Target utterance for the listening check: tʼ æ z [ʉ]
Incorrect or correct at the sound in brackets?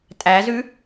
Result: correct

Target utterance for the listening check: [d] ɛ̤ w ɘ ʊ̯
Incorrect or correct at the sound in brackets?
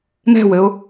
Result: incorrect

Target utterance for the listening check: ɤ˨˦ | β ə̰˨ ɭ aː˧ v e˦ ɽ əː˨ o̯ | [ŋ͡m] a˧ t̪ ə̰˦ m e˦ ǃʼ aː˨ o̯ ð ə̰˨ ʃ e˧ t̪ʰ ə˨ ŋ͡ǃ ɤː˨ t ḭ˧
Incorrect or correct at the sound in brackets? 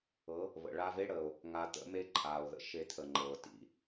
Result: incorrect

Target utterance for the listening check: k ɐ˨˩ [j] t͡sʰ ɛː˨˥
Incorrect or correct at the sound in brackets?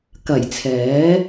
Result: correct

